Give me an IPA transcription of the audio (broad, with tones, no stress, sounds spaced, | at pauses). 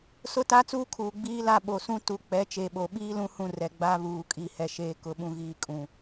s ʊ˦ t a˦ t͡s uː˦ kʰ uː˨ ɡ͡b iː˦ l a˦˨ ɓ o˨ s ũ˦ t u˨˦ k͡p ɛ˨˦ t͡ʃ e˨ ɓ o˨ ɓ iː˦ l ũ˦ h ũ˦˨ r ɛ˨ ɡ͡b a˦ β uː˨ kʼ i˨ h ɛ˨ ʃ eː˨ k ʊ˨ ɓ ũ˨ ɣ iː˨ kʼ ũ˨